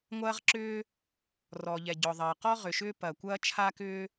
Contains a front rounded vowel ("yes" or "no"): yes